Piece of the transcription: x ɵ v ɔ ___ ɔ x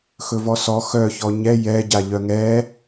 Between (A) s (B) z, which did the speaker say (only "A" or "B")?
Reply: A